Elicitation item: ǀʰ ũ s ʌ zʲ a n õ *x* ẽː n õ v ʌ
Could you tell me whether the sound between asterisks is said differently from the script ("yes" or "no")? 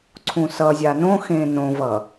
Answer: no